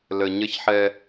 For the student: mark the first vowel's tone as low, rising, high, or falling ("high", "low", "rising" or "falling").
low